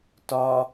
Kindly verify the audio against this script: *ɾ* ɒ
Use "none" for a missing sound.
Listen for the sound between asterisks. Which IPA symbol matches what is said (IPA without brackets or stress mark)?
t